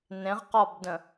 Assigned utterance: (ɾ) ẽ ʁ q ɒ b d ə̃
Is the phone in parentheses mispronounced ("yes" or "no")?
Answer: yes